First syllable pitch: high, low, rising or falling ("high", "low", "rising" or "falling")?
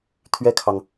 high